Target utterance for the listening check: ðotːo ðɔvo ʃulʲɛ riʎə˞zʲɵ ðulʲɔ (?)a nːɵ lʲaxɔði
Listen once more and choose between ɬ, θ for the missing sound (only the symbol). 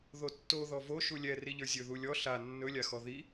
ɬ